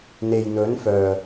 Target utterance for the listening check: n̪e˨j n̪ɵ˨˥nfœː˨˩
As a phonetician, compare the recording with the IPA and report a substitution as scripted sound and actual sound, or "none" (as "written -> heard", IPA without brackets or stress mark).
none